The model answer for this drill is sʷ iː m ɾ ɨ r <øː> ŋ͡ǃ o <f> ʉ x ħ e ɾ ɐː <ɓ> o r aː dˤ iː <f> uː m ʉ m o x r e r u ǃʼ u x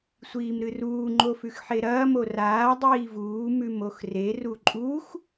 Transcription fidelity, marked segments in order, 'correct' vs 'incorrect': incorrect: uː, correct, incorrect: m, incorrect: v

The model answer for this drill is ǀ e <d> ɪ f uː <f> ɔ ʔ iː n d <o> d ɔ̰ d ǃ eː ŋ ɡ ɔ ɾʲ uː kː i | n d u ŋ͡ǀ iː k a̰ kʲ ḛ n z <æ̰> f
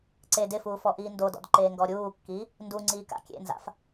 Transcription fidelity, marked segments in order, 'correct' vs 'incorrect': correct, correct, correct, incorrect: a̰

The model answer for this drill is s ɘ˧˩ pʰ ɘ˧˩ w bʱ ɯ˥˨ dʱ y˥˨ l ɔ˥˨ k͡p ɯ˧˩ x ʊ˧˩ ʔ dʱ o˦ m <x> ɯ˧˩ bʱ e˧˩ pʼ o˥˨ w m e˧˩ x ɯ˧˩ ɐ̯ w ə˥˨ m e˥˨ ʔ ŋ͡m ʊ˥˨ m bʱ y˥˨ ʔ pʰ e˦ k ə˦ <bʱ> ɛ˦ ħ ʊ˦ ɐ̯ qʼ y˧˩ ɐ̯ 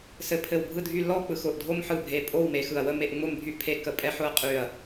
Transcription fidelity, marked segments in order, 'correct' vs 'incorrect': incorrect: ħ, incorrect: pʼ

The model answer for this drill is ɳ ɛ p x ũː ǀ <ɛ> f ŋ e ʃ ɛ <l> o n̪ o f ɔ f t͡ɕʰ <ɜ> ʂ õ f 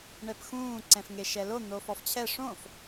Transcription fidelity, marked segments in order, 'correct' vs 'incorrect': incorrect: ɛ̃, correct, incorrect: ɛ

